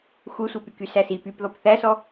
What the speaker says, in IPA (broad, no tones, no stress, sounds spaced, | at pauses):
xʷ e sʷ ɛ p y k y s æ s i p y p ð ɔ p θ æ s ɔ